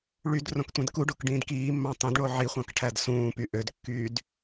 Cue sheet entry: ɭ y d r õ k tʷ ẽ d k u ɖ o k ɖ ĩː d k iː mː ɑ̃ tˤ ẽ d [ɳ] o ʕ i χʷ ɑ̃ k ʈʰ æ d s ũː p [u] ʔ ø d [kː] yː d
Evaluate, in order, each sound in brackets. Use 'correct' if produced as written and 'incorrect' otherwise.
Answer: correct, incorrect: y, correct

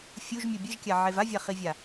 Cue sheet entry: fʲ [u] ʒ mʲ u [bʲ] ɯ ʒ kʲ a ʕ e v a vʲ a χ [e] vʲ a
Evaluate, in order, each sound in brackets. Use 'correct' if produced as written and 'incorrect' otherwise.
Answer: correct, correct, incorrect: i

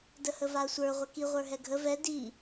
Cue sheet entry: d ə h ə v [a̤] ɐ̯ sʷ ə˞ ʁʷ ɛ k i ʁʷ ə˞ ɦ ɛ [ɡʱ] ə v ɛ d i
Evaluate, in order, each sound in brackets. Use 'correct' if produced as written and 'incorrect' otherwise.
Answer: incorrect: a, correct

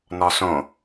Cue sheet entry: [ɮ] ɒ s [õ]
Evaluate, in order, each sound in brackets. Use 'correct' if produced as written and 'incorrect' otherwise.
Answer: incorrect: n, correct

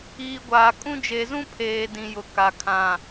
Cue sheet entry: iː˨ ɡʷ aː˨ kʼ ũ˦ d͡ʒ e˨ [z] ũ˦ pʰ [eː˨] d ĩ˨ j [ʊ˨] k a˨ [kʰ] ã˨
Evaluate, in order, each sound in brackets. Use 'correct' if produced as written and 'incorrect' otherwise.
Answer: correct, correct, correct, correct

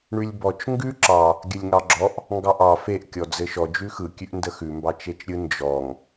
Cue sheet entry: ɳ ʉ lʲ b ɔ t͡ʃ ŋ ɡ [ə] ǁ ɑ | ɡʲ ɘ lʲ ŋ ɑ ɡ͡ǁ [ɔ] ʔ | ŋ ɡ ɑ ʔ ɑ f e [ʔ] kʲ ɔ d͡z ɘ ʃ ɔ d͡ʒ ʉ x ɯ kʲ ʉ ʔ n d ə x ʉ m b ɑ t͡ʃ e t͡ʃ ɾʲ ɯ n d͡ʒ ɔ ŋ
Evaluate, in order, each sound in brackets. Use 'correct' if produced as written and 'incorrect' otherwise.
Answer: incorrect: ʉ, correct, correct

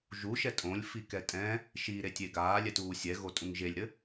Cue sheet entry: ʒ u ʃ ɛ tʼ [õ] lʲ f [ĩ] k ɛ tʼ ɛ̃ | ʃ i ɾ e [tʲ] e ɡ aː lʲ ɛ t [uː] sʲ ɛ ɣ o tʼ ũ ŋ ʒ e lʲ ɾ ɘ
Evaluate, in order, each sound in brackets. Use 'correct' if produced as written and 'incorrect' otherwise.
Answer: correct, incorrect: i, correct, correct

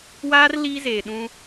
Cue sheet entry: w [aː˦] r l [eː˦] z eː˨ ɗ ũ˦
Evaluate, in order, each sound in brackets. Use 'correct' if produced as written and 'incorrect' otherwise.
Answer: correct, incorrect: iː˦

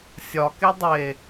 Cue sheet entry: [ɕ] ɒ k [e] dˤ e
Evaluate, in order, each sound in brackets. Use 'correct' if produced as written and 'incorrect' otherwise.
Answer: incorrect: sʲ, correct

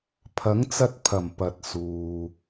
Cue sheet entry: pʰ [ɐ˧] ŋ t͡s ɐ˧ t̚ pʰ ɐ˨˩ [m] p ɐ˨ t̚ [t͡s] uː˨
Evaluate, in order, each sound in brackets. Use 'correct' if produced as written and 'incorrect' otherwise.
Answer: incorrect: ɐ˨˥, correct, incorrect: s

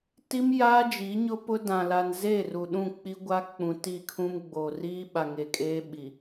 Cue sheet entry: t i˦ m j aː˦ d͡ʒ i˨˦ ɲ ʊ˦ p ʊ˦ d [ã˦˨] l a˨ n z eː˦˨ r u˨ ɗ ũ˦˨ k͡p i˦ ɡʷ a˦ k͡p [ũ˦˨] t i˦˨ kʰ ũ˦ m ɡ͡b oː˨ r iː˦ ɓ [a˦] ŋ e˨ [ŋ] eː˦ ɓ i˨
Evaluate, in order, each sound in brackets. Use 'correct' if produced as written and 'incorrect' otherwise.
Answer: incorrect: ã˨, incorrect: ũ˨, incorrect: a˨, incorrect: kʼ

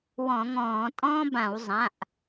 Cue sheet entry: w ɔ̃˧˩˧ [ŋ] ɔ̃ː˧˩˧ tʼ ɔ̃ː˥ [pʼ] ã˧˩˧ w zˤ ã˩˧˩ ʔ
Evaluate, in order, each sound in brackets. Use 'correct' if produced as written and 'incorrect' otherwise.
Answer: correct, incorrect: b

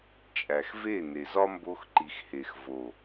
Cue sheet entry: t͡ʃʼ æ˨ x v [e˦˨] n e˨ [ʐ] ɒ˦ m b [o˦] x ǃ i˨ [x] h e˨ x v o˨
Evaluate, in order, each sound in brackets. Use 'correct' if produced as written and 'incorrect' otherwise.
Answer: correct, incorrect: z, incorrect: o˧, correct

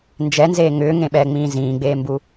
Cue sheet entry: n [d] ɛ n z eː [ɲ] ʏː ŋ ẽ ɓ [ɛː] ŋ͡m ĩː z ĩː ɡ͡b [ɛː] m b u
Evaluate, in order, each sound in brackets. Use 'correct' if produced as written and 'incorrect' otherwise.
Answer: incorrect: d͡ʒ, incorrect: ŋ, correct, incorrect: eː

